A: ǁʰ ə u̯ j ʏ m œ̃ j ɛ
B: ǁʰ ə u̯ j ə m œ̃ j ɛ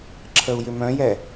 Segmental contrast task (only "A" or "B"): A